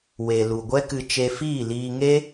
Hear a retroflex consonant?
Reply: no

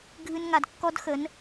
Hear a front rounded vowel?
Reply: no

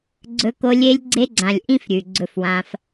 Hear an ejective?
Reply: no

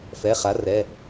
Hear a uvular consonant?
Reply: yes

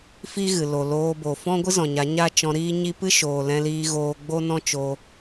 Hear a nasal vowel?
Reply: yes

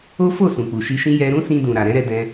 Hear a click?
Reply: no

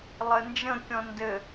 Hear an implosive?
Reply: no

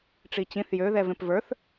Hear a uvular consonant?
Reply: no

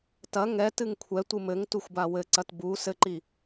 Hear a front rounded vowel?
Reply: no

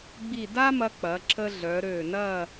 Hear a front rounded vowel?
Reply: yes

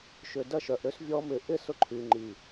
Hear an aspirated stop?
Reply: yes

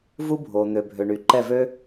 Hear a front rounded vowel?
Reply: yes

